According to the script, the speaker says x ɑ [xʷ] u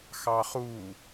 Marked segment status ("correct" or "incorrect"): incorrect